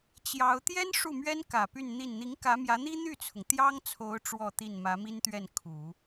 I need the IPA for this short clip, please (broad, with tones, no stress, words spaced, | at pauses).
t͡ɕjɑ˧˥ʊ̯ t̪jɛ˥n ʂu˥˩mɥɛ˥nkä˨˩ py˥˧nn̪i˥˩n n̪i˧˥ŋkä˧˥mjä˧˥ n̪i˥n̪y˥˩t͡sʰʊ˩ŋ t̪jɑ˥ŋt͡sʰo˧˥ʊ̯ ʈ͡ʂwɔ˥˧t̪i˥˩n mä˧˥mi˥nt̪ɥɛ˥˩n kʰu˨˩˦